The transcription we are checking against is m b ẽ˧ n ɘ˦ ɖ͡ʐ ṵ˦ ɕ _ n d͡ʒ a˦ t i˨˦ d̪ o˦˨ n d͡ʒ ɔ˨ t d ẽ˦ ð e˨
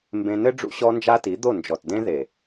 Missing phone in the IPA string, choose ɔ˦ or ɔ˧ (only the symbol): ɔ˦